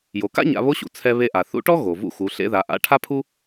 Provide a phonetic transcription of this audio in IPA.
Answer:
jo˩ka̰˥ ɲa̰˩˧βo˧˥ɕṵ˩ t͡sʰɛ˧ βe˧ʔa˩ θṵ˧˥ʈɔ˥ ɣo˩ vṵ˧xu˩˧ ɬḛ˧ða˩˧ ʔa̰˧˥ʈʰa˥pʰu˥

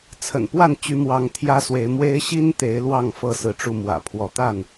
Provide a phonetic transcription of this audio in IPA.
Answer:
t͡sʰə̰˨˩npwa˥˨nt͡ɕy˨˦ mwɑ˨˦ŋt̪ʰjä˦swe˨˦ɪ̯mwe˦ɪ̯ ɕi˦n t̪e˨˦ɪ̯lwɑ˥˨ŋ fɤ˥˨sɹ̩˨˦ʈ͡ʂu˥˨ mwä̰˨˩pʰwɔ˨˦t̪a˥˨n

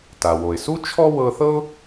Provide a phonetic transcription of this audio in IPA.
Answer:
ta˩wo˩ɪ̯su˥ t͡ʃʰɔ˥ wɤ˧θɤ˥ʊ̯

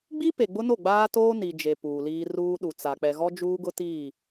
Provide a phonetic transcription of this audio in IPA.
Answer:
ɡ͡bi˦ pe˨ɡ͡bʊ˦no˦˨ ɡ͡baː˦toː˦ ni˨d͡ʒe˨ puː˨liː˦ ruː˦ɗu˨ t͡sa˨ k͡pɛ˨ɣɔ˦d͡ʒuː˦ɡʊ˦ ti˦˨

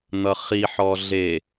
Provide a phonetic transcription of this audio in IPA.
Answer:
n̪ʌχiħɔ ɮe

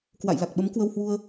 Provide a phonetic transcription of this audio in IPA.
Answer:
kwa̰˧˨jla˨˩k̚ɓə˨˦m kwə˧whwu˧ə̯

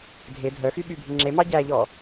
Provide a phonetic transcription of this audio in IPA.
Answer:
dʱe dʱœxyɓybʱi ŋ͡ǁemɑ ɟæʎɔ

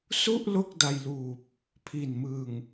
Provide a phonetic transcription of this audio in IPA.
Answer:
su˥˩ʔ lo˥˩k̚da˧jluː˨˩p̚ | pʰi˨˩nmɯ˨˩ŋ

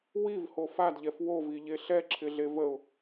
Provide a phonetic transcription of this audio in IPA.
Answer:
wivho fadʎɛf woviʎe ɬɛǁʰɪɮe vəʊ̯

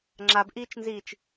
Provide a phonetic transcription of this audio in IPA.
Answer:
ŋ͡ǁabʔiːt͡ʃnziːt͡ʃ

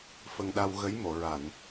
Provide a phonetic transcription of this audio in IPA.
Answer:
fə˧ŋɗa˧w ɣə˧˥jmo˨˩˨ɹa˨˩˨n

